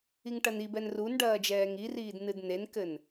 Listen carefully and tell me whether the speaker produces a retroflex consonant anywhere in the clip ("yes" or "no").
yes